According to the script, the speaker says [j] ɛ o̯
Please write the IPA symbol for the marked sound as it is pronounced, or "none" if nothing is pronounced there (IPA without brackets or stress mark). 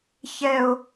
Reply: ç